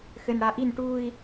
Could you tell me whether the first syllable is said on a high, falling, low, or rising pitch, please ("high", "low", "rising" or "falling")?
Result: low